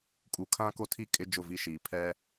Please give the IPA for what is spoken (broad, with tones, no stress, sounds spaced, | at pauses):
kʼ u˨ kʰ ã˦ k o˦ tʰ i˦ kʼ ɪ˦ d͡ʒ ʊ˦˨ v i˦ ʃ iː˨ pʰ ɛ˦